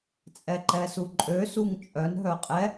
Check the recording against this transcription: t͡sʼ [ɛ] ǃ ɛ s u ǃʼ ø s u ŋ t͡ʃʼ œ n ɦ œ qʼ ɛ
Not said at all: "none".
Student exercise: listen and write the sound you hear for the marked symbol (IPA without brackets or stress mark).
ɛ